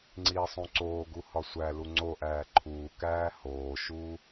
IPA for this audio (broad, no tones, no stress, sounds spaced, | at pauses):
ŋ͡ǀ iː sˤ ũ ǀ oː ɡ u h ɒ sʷ æ l u ŋ͡ǀ o ʔ æː ǃʰ uː k æː h oː ʃ uː